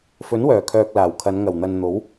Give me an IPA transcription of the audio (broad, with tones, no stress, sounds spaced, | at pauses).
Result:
f ɵ˨˥ n w œː˨˩ kʰ œː˨ k̚ l aː˨˩ w kʰ ɐ˨˧ n ŋ ɐ˨˩ w n̪ ɐ˨ n n̪ o˨˥ w